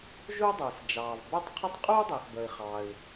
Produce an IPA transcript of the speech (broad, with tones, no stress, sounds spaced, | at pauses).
ʒ u˥ dˤ ə˞˩ s d͡ʒ ɑː˩ v b ə˞˥ tˤ qʰ ə˥ tˤ qʼ u˥ dˤ ɛ˩ x b ə˩ i̯ χ ɑ˩ i̯